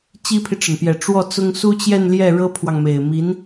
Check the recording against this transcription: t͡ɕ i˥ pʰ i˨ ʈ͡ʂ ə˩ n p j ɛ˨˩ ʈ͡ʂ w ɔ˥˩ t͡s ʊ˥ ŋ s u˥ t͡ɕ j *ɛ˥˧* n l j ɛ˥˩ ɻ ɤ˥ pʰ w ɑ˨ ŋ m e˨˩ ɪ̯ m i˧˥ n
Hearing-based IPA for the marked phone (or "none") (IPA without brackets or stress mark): ɛ˥˧